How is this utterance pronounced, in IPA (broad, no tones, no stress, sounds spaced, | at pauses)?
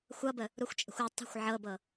xʷ ʌ b ə | ɾ u xʷ t͡ʃʼ ə̤ xʷ ɯ tˤ ə̤ xʷ ʕ ɤ b ɤ